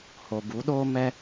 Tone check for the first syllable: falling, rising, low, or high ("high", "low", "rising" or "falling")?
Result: low